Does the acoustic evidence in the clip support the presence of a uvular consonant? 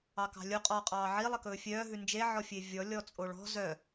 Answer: yes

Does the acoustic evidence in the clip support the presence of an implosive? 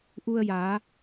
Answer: no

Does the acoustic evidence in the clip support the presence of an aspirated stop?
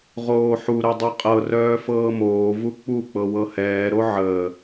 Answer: no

